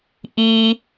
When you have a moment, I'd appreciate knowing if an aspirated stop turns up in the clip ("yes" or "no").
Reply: no